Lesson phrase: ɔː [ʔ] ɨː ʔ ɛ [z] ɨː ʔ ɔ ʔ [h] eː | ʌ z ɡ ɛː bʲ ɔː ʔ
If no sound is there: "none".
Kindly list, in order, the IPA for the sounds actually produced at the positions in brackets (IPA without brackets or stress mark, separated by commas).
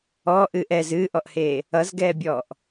ʔ, z, h